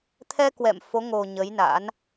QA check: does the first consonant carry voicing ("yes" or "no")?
no